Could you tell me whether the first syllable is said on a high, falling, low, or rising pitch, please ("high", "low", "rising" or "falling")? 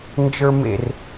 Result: low